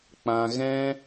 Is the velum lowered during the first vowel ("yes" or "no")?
yes